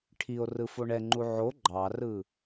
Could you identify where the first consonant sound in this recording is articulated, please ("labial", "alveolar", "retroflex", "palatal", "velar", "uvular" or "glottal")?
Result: retroflex